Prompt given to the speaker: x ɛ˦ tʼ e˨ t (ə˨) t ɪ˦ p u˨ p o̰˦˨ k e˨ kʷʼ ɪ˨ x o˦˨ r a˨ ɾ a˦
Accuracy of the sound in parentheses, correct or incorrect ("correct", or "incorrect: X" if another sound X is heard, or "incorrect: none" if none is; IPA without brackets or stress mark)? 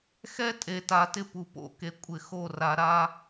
incorrect: a˨